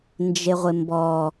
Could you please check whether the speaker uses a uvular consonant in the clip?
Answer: yes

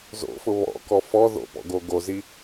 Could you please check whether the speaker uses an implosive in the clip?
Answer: no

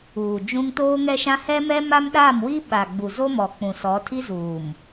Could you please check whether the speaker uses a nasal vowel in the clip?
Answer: yes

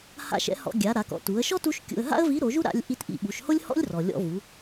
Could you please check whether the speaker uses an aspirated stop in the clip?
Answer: no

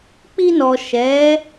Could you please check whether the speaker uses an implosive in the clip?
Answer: no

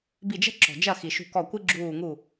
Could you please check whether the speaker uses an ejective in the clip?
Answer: no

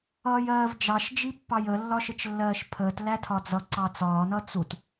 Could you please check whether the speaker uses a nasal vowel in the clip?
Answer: no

